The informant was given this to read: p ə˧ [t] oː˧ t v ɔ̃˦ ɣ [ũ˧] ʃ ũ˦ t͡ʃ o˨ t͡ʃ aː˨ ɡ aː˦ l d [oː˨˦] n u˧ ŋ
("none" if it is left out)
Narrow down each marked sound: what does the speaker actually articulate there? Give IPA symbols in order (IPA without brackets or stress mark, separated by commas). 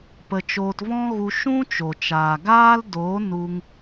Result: t͡ʃ, u˧, oː˨˦